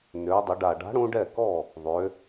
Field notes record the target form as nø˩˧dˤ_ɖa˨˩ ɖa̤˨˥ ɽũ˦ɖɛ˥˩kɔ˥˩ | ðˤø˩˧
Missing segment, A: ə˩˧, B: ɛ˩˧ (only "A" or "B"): A